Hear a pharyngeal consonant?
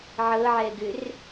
yes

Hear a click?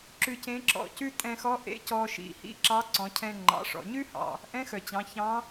yes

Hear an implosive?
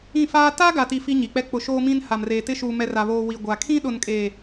yes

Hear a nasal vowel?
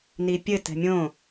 yes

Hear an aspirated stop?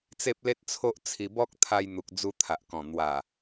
yes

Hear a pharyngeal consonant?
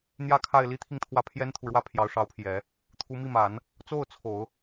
no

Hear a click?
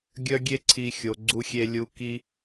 yes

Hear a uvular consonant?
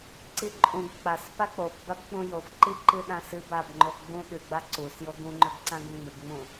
no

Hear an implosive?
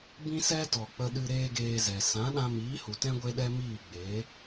yes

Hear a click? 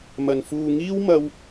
no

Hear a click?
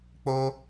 no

